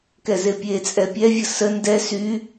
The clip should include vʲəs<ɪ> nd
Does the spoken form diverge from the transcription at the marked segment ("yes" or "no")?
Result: yes